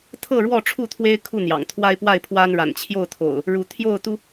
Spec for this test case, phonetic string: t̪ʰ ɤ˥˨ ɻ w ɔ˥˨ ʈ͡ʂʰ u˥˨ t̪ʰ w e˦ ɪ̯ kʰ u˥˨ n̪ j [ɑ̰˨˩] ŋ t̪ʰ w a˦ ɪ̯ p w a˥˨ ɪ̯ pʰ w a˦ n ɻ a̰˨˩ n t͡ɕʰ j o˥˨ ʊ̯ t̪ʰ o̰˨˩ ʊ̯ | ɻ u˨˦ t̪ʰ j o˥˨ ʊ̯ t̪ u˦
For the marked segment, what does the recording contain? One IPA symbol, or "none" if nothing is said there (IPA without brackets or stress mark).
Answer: ɑ̰˨˩